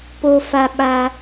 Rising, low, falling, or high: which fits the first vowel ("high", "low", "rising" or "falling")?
high